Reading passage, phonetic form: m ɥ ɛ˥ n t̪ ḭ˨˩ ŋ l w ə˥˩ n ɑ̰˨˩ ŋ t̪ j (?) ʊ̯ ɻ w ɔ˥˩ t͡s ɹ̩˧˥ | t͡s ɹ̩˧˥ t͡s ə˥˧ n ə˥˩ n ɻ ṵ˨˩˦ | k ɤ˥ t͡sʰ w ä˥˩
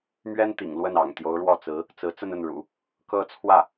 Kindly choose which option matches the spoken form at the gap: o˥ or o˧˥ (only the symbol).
o˧˥